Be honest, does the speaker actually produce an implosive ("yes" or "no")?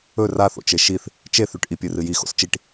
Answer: no